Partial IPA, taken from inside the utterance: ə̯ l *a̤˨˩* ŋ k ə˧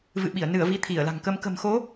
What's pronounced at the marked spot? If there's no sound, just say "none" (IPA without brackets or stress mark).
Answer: a̤˨˩